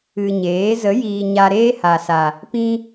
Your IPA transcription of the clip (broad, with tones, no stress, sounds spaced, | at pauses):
ɨ˨ ɲ eː˨˦ z ə˨˦ j iː˨ ɲ a˧ ɾ eː˦ h a˨ s a˨ | p ĩ˦